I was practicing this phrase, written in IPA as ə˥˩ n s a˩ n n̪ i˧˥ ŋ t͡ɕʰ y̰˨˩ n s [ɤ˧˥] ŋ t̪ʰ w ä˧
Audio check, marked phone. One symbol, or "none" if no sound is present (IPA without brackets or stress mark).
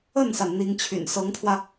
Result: ɤ˧˥